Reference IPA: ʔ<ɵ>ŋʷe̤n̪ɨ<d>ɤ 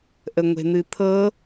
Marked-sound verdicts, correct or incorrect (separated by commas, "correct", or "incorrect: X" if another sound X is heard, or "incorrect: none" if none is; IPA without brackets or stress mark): incorrect: ə, incorrect: t̪ʰ